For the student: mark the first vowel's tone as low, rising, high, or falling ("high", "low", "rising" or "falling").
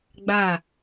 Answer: falling